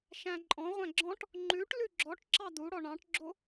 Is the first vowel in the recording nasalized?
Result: yes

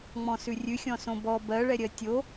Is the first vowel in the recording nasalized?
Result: yes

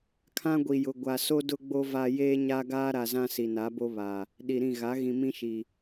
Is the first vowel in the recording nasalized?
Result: yes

